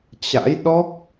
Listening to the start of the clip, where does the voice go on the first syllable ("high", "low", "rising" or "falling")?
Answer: rising